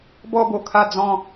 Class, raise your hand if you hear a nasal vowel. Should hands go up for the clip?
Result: yes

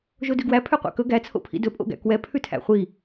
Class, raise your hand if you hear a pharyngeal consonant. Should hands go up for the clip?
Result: no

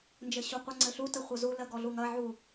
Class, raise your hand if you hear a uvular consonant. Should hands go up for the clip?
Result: yes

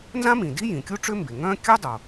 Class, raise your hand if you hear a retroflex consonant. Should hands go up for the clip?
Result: yes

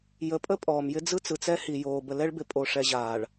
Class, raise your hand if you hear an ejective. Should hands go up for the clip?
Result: yes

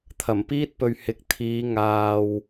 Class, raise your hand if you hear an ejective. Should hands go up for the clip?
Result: no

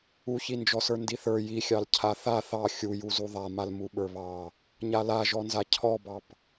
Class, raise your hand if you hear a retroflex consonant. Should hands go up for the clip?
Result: no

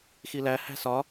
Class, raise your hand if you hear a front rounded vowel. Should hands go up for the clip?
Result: no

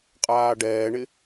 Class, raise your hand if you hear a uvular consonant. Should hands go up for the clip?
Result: yes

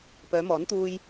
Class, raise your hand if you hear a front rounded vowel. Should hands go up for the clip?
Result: yes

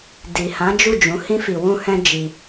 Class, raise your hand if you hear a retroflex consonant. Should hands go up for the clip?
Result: no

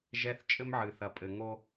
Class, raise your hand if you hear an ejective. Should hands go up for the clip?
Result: yes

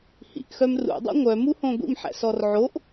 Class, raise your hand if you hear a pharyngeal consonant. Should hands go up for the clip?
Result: yes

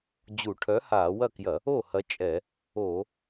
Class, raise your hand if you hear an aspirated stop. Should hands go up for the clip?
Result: yes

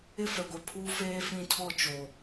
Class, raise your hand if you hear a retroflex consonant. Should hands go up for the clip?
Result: no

